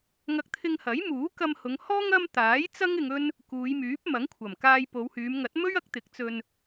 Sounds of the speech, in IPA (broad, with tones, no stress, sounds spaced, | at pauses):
ŋ ɐ˧ k̚ t̪ʰ ɪ˧ ŋ h ɐ˨˥ j m uː˨˥ k ɐ˧ m h ʊ˨˧ ŋ h ɔː˥ ŋ ɐ˥ m t̪ aː˨˥ j t͡s ɐ˥ ŋ ɪ˧ ŋ ɵ˥ n | k uː˨˧ j m yː˨˥ p̚ m ɐ˨˥ ŋ kʷʰ ɐ˨˩ m k aː˧ j p o˨˧ w h yː˨˧ m ŋ ɐ˨˥ t̚ m ɵ˥ ɥ ɐ˨˥ k̚ t̪ ɪ˨˥ k̚ t͡s ɵ˧ n